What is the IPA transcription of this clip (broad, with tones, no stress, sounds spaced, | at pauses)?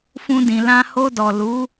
f ũ˧ d ĩ˨ l ã˧ h o˧ d ɔ˨ l u˨˦